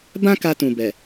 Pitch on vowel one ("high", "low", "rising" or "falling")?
high